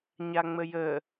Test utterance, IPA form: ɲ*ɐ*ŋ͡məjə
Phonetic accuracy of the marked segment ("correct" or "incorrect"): incorrect